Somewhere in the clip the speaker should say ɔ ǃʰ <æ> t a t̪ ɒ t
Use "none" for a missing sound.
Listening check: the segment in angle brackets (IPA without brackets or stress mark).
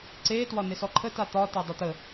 ə